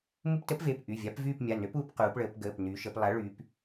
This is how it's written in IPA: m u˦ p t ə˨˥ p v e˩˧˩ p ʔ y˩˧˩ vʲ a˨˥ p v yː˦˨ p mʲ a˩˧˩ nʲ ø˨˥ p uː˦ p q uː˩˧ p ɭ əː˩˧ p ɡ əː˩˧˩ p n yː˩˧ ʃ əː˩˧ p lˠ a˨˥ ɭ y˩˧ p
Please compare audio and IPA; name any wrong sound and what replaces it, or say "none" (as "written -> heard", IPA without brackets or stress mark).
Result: nʲ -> n